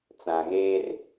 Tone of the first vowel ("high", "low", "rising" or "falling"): low